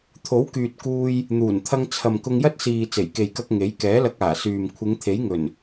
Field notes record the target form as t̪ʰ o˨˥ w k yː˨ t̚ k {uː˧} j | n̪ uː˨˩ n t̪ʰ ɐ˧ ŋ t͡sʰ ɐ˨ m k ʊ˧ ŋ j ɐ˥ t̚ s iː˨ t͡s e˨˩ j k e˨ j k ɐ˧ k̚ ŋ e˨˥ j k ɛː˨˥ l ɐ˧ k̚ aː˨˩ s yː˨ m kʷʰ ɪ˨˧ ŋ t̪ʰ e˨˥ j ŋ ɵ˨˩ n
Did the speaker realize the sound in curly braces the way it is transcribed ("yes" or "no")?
yes